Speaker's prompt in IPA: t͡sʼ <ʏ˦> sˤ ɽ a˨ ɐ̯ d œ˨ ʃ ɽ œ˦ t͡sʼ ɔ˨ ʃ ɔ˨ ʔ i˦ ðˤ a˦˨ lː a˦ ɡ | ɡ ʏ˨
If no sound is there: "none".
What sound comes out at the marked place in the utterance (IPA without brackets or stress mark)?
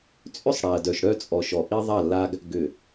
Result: ʏ˦